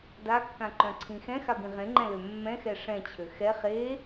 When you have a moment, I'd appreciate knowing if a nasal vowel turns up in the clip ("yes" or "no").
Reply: yes